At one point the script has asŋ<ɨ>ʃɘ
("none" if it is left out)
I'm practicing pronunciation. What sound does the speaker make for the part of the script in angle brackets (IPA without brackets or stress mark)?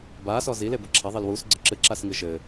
ɨ